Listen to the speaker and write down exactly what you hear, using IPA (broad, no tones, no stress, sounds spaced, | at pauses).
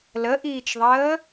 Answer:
l ə ʔ iː t͡ʃ ðˤ əː